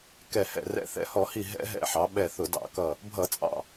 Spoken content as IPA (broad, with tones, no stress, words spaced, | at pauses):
kɛ˧˩hɛ̰˧˩ rɛ̰˧˩θɛ̰˧˩hɔ˧˩˧hi˧˩ ɦɛ̰˧˩˧ ɦɛ̰˧˩ħɑ˩˧ ɓɛ˧˩ θʊ˧˩˧dɑ̰˧˩˧kʌ˧˩ | bʱʌ˧˩˧t͡sʼɑ̰˧˩